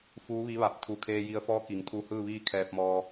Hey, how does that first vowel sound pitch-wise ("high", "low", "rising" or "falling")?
rising